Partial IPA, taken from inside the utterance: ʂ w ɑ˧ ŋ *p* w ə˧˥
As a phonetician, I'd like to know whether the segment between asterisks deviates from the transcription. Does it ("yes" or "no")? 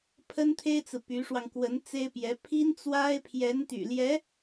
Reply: yes